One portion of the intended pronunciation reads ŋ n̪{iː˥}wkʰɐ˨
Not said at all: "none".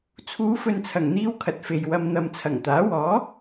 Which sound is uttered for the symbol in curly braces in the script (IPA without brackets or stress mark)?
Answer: iː˥